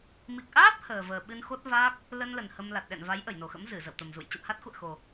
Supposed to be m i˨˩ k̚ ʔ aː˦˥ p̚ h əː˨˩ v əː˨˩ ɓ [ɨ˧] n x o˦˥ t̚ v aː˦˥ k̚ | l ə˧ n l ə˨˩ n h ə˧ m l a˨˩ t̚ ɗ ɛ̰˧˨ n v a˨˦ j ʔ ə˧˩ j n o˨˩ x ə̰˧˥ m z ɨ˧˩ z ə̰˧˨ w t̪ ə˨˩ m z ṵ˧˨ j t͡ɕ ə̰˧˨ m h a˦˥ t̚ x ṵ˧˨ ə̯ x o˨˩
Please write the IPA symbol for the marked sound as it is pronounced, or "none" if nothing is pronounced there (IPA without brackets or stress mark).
ɨ˧